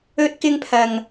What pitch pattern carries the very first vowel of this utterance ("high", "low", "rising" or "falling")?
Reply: high